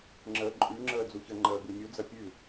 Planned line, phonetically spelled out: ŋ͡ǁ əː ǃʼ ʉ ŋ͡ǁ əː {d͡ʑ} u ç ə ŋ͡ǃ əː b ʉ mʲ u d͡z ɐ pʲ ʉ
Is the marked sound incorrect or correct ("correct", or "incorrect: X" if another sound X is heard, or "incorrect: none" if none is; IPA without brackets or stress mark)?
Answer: incorrect: d͡z